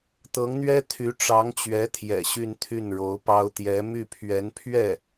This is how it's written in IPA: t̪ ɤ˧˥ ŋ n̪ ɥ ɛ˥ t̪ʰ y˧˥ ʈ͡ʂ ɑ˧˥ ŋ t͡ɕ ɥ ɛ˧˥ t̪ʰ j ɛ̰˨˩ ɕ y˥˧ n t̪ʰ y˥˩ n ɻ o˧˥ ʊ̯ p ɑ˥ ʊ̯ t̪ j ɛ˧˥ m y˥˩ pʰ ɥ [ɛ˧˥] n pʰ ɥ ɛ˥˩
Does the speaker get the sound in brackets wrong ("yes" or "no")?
no